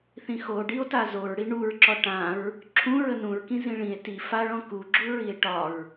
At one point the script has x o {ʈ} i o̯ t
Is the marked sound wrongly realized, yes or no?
yes